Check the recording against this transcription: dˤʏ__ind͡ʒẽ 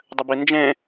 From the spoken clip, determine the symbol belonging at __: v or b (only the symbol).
b